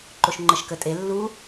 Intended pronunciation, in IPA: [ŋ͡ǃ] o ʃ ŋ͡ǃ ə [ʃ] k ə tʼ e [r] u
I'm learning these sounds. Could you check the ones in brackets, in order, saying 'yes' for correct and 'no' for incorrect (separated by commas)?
no, yes, no